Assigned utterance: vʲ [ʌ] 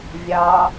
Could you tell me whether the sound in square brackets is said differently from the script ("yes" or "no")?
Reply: yes